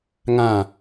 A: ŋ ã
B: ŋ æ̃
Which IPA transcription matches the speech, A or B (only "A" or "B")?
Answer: A